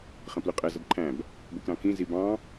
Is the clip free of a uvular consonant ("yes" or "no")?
no